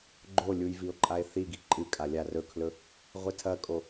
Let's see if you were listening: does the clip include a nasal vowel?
no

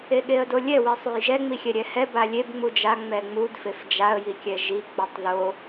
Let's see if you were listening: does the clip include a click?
no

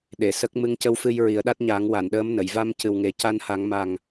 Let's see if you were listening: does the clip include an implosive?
yes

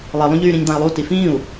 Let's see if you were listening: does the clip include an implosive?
no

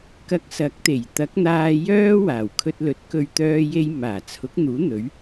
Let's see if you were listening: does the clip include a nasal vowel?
no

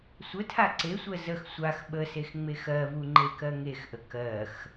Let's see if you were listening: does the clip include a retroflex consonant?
no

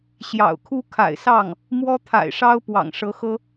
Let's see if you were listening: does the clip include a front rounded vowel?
no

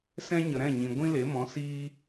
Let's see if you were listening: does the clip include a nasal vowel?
yes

